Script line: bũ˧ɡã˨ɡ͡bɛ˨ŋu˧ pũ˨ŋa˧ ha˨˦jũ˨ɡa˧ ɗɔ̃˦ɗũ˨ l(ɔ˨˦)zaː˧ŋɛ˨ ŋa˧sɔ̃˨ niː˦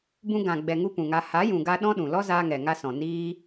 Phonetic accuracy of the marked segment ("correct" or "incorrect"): incorrect